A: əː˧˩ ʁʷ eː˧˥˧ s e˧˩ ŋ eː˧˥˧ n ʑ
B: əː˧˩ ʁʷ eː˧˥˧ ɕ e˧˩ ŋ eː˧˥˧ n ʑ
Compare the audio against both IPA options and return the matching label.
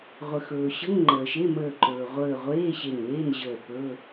B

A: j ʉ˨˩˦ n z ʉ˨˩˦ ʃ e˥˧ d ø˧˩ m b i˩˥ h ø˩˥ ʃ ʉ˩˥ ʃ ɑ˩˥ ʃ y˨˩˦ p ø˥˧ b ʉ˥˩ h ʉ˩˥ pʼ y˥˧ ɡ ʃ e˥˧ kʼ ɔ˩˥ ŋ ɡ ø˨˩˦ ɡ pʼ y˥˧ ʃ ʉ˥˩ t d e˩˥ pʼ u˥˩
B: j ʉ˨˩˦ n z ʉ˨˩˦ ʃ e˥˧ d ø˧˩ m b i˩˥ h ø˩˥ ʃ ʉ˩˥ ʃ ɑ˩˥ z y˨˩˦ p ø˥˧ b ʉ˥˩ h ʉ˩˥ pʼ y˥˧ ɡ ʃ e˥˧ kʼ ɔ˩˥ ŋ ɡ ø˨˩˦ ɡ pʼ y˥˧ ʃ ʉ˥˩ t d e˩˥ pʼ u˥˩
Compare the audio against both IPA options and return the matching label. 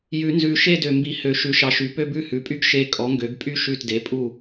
A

